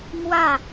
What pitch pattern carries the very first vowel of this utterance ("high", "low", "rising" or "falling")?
falling